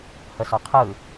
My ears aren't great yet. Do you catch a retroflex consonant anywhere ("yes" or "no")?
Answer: no